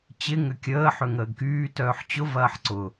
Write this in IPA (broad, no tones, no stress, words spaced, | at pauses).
t͡ɕɪ ŋʏkʲəː ħøŋəːɡkyː tœːħt͡ɕʊvɐːħ ǀʊ